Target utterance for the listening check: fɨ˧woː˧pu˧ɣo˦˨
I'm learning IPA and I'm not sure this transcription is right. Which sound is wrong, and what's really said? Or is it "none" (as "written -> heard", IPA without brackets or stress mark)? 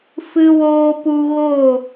none